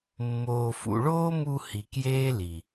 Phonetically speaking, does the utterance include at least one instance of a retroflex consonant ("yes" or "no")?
yes